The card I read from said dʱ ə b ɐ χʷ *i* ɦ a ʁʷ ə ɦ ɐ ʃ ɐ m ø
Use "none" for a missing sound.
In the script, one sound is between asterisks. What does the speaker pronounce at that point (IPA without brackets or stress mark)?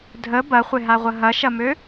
ɪ